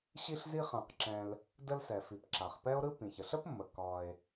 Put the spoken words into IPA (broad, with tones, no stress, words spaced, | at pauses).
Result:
ɕi˧ɬzi˧χã˩qǁɛ̃˩l | də˧lsɛ˩fi˩p ǁa˩χpɛ˥o̯ɾɯ˥ pĩ˩çə˩ɬə˥pmːə˩ kɒ˩e̯